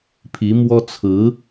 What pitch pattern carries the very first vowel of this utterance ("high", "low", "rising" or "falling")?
rising